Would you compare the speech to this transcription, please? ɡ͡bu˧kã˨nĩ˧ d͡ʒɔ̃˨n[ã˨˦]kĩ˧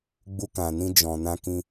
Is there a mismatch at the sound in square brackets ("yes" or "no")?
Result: yes